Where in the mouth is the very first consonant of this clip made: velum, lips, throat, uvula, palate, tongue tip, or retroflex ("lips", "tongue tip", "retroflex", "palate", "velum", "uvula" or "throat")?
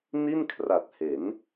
tongue tip